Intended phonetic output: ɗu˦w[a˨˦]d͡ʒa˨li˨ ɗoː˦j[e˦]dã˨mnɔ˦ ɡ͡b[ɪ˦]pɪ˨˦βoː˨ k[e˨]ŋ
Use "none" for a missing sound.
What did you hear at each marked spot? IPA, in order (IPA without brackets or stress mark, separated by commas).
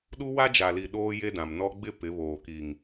a˦, e˦, ɪ˦, i˨